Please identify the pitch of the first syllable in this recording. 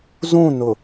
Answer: falling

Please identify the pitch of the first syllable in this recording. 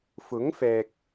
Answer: rising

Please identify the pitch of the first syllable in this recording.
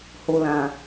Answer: low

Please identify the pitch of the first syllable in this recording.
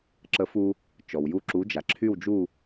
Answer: rising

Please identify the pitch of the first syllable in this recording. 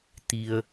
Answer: low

